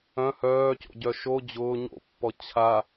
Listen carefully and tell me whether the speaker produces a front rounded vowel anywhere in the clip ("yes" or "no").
yes